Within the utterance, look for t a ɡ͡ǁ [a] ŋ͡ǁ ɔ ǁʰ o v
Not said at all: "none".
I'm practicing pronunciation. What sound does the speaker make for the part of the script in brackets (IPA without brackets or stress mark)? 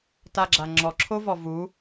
a